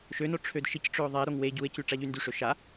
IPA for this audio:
ʃ ø n o ʈ͡ʂʰ ø d ʃ i c ʈ͡ʂ ø o̯ ðˤ ɛ ɾ o ŋ w e ɟ u e̯ c y ʈ͡ʂ a ʎ y n d y ʂ ø ʃ a

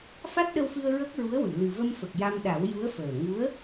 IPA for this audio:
f a˦˥ t̚ ɗ ə˧ w f ɨ˧ ə̯ ɹ ə˦˥ k̚ ɹ u˧˥ ə̯ w ɨ˨˩˨ l ɨ˨˩ v ə˧ m f ə˨˩ k̚ j a˧ m ɗ a˨˩˦ w j u˧˥ ə̯ f əː˨˩ ŋ u˧˥ ə̯

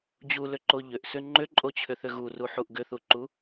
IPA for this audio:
d͡ʑ u l ʏ ǃ o ʎ ʏ ʔ s ʏ ŋ͡ǃ ʏ ǃʼ o t͡ɕʰ ʏ θ ʏ ɣ u r u ħ u ʔ ɡ ʏ θ u ǃ u

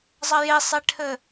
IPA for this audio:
zˤ ɐ j e sˤ e ʈʰ ɘ

